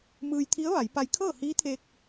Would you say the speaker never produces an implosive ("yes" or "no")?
yes